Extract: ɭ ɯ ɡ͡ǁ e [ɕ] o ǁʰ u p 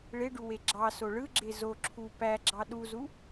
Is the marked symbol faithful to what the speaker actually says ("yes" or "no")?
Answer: no